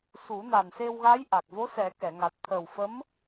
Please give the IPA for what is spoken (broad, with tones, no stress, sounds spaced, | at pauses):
s u˨˩˦ n a˨˩ n s e˧ w ɣ a˧˥ j ʔ a˨˩ k̚ v o˧˥ s ɛ˨˩˦ k ɛ˨˩˨ ŋ a˨˩ t̚ t̪ʰ ə˨˩ w f ə˧˥ m